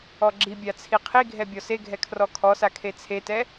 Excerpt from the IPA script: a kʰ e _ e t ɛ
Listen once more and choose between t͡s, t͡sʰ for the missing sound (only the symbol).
t͡sʰ